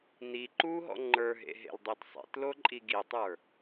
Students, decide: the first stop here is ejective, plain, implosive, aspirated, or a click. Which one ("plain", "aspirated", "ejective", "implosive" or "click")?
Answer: click